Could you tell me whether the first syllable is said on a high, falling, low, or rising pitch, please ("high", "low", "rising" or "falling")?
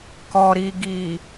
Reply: low